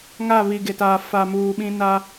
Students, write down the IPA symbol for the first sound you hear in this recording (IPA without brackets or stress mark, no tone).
ŋ